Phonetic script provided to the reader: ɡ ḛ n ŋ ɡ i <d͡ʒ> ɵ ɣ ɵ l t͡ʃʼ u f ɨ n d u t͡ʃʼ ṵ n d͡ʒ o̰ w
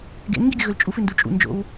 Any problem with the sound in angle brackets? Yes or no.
yes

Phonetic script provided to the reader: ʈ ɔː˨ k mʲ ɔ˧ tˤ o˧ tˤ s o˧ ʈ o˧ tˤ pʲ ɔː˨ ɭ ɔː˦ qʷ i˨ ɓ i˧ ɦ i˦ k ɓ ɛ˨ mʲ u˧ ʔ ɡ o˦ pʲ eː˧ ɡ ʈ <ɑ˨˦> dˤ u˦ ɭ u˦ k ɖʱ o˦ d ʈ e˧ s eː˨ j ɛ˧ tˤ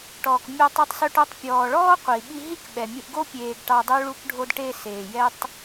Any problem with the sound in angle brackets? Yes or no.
yes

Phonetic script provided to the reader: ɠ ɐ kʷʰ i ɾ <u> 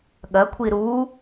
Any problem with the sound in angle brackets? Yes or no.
no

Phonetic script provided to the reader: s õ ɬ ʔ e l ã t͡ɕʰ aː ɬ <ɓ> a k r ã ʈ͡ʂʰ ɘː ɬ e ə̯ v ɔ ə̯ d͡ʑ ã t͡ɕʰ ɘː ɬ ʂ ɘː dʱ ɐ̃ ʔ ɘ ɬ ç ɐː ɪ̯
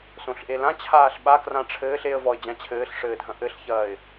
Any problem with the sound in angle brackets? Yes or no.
no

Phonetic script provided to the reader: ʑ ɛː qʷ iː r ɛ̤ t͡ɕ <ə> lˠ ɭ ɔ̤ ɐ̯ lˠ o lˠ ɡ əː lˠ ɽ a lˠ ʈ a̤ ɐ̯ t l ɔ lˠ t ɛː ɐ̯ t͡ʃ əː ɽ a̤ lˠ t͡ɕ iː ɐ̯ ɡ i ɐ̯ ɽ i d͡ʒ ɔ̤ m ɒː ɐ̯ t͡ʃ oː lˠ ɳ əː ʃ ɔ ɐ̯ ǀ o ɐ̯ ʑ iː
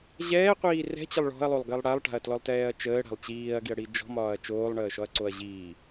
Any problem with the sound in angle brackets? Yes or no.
no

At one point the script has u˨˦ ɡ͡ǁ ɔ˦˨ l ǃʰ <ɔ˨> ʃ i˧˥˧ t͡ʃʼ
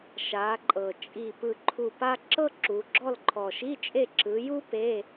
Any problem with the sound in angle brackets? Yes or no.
no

